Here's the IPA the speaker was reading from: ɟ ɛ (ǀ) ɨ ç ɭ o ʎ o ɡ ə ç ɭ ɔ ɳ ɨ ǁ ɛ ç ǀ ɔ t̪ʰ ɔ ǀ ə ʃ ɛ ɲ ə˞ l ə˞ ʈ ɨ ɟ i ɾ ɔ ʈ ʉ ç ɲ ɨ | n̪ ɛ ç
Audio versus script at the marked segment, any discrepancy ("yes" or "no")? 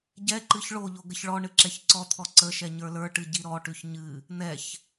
yes